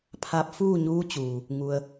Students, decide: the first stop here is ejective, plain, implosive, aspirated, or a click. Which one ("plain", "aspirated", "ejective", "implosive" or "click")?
aspirated